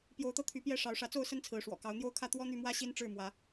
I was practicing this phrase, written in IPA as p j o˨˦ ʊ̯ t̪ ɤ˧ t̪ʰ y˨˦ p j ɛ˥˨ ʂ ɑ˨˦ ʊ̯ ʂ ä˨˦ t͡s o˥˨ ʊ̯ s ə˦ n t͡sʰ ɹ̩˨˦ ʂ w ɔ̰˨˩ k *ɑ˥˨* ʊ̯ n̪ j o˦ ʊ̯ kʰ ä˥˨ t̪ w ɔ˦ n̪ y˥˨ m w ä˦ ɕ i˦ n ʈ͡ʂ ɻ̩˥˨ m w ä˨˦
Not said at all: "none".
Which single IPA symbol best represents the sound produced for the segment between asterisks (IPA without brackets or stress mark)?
ɑ˨˦